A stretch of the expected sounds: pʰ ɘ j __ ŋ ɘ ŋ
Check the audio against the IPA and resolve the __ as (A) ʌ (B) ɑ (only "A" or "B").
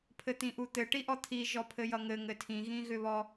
A